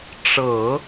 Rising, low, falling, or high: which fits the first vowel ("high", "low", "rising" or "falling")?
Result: low